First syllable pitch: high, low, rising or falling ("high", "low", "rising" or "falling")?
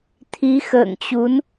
rising